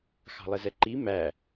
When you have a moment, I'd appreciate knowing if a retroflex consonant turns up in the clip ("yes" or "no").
no